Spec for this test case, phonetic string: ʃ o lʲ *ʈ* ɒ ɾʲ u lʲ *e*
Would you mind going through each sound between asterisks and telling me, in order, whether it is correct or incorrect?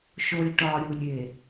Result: correct, correct

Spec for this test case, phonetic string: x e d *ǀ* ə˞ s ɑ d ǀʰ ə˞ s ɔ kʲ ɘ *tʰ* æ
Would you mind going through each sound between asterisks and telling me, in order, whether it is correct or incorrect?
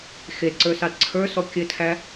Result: correct, correct

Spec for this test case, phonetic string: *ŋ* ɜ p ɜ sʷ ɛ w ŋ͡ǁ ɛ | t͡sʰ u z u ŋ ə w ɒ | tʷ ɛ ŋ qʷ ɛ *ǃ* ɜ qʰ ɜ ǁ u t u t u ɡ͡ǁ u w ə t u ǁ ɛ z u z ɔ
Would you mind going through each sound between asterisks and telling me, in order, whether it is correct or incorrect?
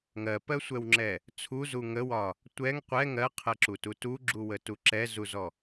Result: correct, incorrect

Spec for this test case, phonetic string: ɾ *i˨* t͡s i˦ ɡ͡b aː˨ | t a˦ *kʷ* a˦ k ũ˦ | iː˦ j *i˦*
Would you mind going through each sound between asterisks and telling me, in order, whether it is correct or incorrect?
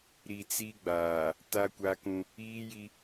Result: correct, correct, correct

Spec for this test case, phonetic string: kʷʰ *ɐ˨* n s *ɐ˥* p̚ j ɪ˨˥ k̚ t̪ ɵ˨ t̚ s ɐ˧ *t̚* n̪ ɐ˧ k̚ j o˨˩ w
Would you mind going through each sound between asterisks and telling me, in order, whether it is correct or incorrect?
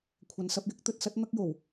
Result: correct, incorrect, correct

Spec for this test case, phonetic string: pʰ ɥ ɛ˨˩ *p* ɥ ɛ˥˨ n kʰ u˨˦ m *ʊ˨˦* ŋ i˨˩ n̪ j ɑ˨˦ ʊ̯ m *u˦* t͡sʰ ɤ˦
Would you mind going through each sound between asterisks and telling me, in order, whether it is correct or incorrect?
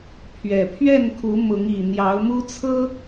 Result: incorrect, correct, correct

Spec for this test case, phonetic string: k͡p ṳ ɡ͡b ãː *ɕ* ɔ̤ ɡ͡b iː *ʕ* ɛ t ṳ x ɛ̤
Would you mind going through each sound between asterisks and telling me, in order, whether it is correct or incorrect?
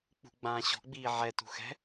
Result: correct, correct

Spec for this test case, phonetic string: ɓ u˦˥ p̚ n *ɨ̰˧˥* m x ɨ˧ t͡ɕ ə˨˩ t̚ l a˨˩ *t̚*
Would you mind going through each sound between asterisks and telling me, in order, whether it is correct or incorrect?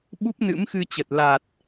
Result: correct, correct

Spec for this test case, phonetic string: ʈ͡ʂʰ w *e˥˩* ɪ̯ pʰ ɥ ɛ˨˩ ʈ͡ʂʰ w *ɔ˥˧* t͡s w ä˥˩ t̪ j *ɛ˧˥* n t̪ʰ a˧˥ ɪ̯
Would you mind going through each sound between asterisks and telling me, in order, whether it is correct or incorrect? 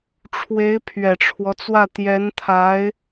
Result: incorrect, incorrect, correct

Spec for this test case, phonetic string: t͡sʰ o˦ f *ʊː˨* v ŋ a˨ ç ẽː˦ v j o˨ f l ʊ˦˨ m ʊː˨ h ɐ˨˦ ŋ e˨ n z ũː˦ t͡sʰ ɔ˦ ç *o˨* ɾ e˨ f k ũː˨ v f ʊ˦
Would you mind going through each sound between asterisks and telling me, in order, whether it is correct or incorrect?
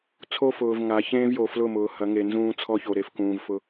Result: correct, correct

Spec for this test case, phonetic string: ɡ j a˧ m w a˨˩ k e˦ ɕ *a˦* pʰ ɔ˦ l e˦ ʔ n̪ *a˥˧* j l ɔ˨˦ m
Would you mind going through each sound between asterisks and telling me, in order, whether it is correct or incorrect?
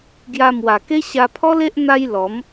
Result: incorrect, incorrect

